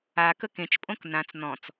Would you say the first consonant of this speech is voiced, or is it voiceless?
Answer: voiceless